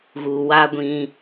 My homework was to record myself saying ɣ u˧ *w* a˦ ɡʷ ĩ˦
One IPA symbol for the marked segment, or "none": w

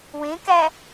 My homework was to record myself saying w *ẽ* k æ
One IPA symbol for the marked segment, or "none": ẽ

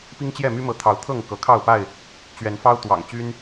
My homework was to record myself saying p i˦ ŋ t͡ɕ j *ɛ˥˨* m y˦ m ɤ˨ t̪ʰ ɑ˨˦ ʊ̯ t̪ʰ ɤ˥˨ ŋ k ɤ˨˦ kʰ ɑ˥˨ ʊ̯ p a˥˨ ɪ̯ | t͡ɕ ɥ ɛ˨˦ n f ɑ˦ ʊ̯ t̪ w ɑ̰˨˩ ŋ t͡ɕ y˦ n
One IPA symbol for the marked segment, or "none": ɛ˥˨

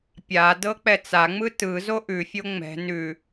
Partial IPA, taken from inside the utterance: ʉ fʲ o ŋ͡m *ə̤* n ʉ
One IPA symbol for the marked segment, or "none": ɛ̤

